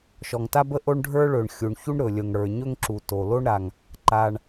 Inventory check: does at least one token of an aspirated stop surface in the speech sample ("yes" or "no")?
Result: no